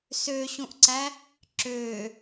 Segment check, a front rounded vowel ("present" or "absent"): present